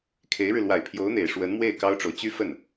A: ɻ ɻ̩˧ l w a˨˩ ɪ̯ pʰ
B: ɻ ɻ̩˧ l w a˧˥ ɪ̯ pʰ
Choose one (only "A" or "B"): A